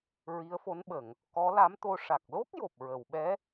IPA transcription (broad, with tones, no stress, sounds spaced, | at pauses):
ɹ i˧˥ ə̯ f o˧˥ n ɓ ə˨˩˨ ŋ | k ɔ˧˥ l a˧˥ m t̪ o˧ ʂ a˨˩ k̚ l o˦˥ k̚ j o˨˩ p̚ ɹ ə˨˩˨ w ɓ ɛ˧˥